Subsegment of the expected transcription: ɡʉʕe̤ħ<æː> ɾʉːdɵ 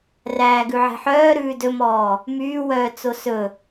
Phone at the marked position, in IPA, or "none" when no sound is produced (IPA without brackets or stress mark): œː